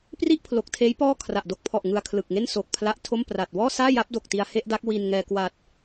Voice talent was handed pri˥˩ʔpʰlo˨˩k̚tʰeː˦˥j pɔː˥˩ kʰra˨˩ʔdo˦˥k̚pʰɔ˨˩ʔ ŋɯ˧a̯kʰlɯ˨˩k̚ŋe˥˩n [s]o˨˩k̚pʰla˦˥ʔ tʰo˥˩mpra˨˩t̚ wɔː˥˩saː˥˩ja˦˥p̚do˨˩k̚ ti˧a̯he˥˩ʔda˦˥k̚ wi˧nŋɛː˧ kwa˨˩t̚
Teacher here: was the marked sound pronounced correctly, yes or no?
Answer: yes